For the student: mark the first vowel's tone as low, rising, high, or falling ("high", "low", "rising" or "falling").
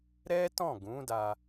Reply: high